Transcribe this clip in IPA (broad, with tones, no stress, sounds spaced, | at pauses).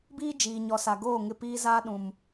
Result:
b iː˦ d͡ʒ iː˨ ɲ ɔ˨ s a˨ ɡ oː˦˨ ŋ ɪ˦˨ p iː˦ z aː˦ ɗ ũ˨ m